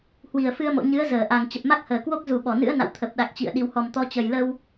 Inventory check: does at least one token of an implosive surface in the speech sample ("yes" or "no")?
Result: yes